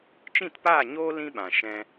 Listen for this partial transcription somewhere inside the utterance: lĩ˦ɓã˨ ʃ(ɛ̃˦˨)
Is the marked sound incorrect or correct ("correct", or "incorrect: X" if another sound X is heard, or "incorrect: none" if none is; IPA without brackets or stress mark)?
incorrect: ɛ̃˦